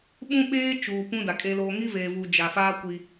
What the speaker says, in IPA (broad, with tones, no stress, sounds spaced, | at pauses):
ɓ ũ˦ ɓ eː˦ t͡ʃ uː˨ p ũ˦ d a˨ kʼ e˦ l oː˦ ŋ i˦ v eː˨ v uː˨ d͡ʒ a˨ f aː˦ kʷ i˦